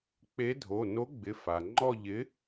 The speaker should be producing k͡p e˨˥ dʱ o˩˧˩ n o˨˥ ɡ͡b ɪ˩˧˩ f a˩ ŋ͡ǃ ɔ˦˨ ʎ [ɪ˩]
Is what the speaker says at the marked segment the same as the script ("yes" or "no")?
no